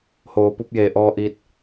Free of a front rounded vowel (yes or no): yes